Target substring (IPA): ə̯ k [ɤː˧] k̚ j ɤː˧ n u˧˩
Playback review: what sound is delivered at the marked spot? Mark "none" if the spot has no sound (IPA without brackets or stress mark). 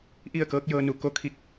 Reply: ɤː˧˥